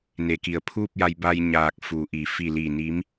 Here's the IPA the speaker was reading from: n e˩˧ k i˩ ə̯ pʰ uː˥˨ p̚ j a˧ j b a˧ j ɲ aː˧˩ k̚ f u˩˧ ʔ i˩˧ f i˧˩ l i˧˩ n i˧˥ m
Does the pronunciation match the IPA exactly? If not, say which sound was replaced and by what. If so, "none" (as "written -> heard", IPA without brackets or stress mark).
none